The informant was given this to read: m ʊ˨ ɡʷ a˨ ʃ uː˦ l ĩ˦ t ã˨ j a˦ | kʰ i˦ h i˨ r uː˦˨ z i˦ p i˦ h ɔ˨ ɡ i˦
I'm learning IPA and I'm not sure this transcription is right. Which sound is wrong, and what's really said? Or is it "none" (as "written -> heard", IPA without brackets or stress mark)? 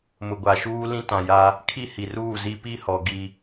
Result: none